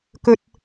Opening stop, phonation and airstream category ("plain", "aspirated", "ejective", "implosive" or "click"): plain